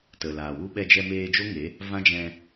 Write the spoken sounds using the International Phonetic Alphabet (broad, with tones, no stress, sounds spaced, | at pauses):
t ə˨ l aː˨ w u˧ ɓ ɛ˧ d͡ʒ ɛ˧ m eː˧ d͡ʒ o˦ ŋ e˨˦ | v ã˦ d͡ʒ ɛ̃˧